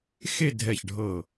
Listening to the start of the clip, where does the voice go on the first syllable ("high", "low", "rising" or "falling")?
falling